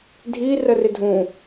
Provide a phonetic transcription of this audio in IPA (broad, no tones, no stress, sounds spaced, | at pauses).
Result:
dʱ i r ə r ɪ dʱ ũ